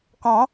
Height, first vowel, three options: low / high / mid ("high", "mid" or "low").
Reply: mid